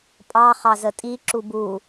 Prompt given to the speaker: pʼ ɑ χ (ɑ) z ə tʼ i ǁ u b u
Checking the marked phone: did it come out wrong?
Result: no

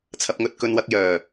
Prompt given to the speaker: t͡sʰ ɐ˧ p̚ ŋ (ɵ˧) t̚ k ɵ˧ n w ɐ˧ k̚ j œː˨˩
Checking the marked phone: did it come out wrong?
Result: no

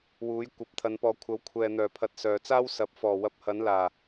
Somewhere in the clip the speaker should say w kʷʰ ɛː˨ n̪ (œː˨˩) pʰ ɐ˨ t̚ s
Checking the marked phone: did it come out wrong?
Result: no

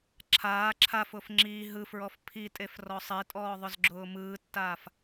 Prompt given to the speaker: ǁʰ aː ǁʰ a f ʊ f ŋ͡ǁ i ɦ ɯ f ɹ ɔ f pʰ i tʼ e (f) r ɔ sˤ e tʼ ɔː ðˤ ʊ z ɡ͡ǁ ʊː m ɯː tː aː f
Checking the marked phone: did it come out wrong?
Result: no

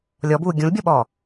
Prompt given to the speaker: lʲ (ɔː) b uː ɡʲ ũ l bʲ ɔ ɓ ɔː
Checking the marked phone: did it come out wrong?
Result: yes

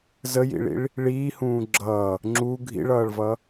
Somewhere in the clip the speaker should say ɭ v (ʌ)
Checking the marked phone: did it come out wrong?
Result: no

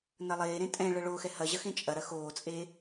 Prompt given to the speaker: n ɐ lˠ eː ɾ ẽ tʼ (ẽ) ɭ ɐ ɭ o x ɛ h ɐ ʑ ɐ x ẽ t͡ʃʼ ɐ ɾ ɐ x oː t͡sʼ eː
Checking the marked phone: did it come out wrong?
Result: yes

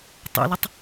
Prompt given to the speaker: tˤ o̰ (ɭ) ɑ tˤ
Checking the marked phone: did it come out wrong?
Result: yes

